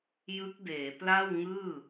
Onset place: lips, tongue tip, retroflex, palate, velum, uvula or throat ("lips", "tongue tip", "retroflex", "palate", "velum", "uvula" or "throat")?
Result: palate